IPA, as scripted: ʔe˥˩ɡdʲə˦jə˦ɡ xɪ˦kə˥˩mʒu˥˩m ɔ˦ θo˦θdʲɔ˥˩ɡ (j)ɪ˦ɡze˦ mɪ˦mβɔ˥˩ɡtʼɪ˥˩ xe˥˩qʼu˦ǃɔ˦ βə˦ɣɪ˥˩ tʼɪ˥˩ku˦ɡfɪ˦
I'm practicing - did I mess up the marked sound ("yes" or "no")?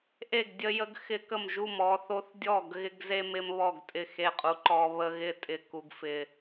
yes